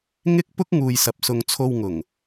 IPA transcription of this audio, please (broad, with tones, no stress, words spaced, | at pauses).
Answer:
ŋɪ˥k̚pʊ˥k̚ ŋuː˨jsɐ˨p̚sʊ˨ŋ t͡sʰo˧wŋʊ˨˩ŋ